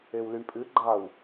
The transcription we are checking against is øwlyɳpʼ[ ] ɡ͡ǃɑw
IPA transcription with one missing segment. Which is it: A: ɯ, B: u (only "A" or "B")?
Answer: A